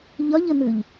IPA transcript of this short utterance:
ʎ ɒ ʎ ə n̪ ʉ ʎ

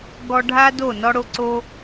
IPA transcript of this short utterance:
ɡ ɔ˧ ɖʱ a˦ d o˦˨ n ɔ˧ ɽ o˦ ǀ o˦

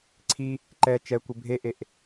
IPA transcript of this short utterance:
ǀʰ i | ǃ ɛ t͡ʃ ɛ kʷ ɪ bʱ e ʔ e ʔ

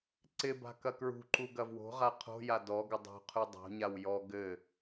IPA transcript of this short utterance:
ǀ ɪ b a̤ k ɐ k ɹ ṳ ǃ u ɡ ɐ v w o̤ ʁ a qʰ o̤ j a d ɔ ɡ ɘ dˤ ṳ qʰ ʉ dˤ o̤ ɲ a w j ɔ ɡ ɘ

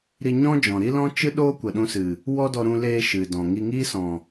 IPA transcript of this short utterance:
ɾ i˧ ɲ ɔ̃˦ d͡ʒ ɔ̃˨ ɾ i˦ l ɔ̃˦ t͡ʃ ɨ˦ ɗ oː˦ kʷ ə˨ ɗ ũ˧ s ɨ˨ | w ɔ˦ d ɔ˧ ɾ ũ˧ l eː˧ ʃ ɨ˨ d ɔ̃˨ ŋ i˧ ŋ iː˦ s ɔ̃˨

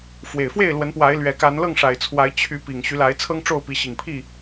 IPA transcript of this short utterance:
f w e˨˩ ɪ̯ f w e˥˨ ɪ̯ l w ə˨˦ n p w a˨˦ ɪ̯ l ɥ ɛ˨˦ k a˨˦ n l ɤ˥˨ ŋ ʂ a˨˩ ɪ̯ t͡sʰ w a˨˦ ɪ̯ t͡ɕʰ y˨˦ p i˨˩ ŋ ɕ y˨˦ l a˨˦ ɪ̯ t͡sʰ ɤ˦ ŋ ʈ͡ʂ o˥˨ ʊ̯ p i˨˦ ɕ i˨˩ ŋ pʰ i˥˨

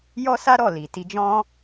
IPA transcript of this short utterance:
j ɔ˦ s a˦ ɾ ɔ˦˨ l i˨ t i˧ d͡ʒ ɔ̃˦

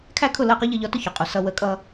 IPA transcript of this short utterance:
kʰ æ˥˩ kʰ ʊ˥˩ l ɜ˥˩ q ɒ˥ ʎ ʌ˧ ʎ ɒ˧ t ʊ˥˩ ç ɔ˩ qʼ u˩ s ʌ˧ w ə˩˥ kʼ ʌ˧

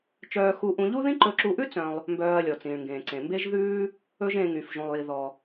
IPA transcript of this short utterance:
t͡ʃ œː˧ x u˧ ʔ ũ˧ ʎ u˥ ð ĩ˥ ǃ ɵ˧ ǁ u˧ ʔ ʉ˥ t͡s œ̃˧ lˠ | m b œː˧ ɐ̯ lʲ ɔ˩ t͡s ĩː˩ ɭ ŋ ɡ ẽː˩ ǀ ẽ˩ m b e˥ ʒ ð ʉː˥ | ɵ˥ ʒ ẽ˧ ŋ y˩ f ʒ ũ˩ lˠ j i˩ ð ɔ˩

